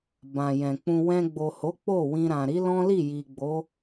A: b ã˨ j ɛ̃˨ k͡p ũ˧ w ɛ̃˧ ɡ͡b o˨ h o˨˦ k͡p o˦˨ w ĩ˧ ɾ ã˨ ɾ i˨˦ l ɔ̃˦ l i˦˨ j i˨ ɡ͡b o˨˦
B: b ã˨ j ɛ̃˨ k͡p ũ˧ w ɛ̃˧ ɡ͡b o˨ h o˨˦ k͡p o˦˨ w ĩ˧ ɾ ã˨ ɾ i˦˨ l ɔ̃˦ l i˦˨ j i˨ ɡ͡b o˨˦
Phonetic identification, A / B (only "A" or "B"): A